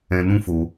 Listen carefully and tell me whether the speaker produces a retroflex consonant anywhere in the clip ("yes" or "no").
no